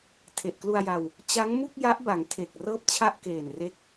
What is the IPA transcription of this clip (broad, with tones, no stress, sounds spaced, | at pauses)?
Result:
tʰ e˨˩ ʔ k l u˧ a̯ j a˧ w | t͡ɕ a˦˥ ŋ m u˥˩ k̚ j a˦˥ ʔ b a˩˦ ŋ tʰ e˨˩ k̚ r ɤː˥˩ p̚ t͡ɕʰ a˥˩ ʔ k eː˨˩ n r e˦˥ k̚